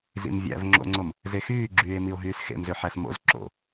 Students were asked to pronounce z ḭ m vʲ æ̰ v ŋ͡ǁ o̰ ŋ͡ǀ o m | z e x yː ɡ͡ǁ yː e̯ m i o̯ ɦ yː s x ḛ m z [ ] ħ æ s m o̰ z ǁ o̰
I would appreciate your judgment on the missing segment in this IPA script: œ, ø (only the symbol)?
ø